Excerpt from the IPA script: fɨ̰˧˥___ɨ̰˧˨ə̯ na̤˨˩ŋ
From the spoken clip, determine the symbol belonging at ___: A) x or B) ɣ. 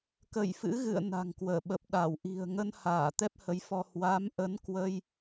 B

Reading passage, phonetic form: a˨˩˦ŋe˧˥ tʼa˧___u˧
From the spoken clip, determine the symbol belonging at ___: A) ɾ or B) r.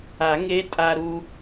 A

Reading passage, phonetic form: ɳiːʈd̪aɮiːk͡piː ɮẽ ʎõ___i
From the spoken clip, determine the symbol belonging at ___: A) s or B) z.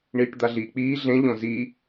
B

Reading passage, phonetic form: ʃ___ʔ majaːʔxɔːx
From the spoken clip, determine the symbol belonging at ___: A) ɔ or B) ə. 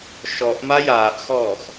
A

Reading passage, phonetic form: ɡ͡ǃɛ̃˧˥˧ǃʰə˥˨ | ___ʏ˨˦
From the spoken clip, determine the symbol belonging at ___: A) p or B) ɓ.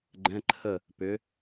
A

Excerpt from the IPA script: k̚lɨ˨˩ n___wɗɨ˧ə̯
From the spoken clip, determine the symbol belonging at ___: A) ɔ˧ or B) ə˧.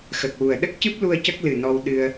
A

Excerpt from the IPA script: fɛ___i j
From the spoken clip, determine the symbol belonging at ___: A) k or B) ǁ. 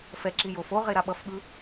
B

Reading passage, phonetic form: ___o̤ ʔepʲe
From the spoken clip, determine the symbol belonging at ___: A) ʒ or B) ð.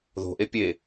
B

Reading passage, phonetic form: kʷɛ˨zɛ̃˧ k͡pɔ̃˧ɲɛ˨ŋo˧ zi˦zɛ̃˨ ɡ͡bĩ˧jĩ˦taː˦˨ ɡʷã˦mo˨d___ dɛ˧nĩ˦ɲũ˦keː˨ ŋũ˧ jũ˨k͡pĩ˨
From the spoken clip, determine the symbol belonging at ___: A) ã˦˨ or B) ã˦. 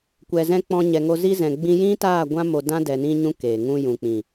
B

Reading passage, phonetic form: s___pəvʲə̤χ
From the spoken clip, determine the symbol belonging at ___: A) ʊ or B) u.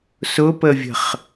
A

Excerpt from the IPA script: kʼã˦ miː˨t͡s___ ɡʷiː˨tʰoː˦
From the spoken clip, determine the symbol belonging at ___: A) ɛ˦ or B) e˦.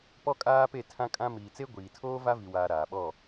B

